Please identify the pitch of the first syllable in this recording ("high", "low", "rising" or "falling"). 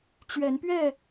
rising